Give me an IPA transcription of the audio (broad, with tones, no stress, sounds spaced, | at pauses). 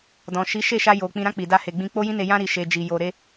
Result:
d ɔ̃˨ ʃ i˨˦ ʃ e˦˨ ʃ a˧ j o˨ k͡p ĩ˧ ɾ ã˦ k͡p i˧ d a˦ h e˧ ɡ͡b ĩ˦ k͡p o˦ j ĩ˦ n e˧ j ã˦ ɾ i˧ ʃ e˧ d͡ʒ i˨ j o˧ ɾ e˦